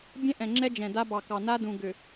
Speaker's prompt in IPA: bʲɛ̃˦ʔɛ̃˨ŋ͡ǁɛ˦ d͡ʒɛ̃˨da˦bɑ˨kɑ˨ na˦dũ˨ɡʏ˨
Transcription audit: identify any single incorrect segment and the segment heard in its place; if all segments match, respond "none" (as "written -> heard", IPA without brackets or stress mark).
none